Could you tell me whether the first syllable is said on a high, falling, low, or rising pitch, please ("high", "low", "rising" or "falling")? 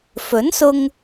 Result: rising